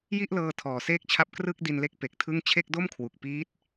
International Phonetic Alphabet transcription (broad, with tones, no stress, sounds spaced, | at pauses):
j i˥˩ ʔ l ɤː˧ tʰ ɔː˨˩ s eː˥˩ k̚ t͡ɕʰ a˥˩ p̚ k r ɯ˥˩ k̚ d i˧ n l e˦˥ k̚ p e˨˩ k̚ tʰ ɯ˥˩ ŋ t͡ɕʰ e˥˩ k̚ d o˥˩ m kʰ w u˨˩ k̚ p iː˦˥ t̚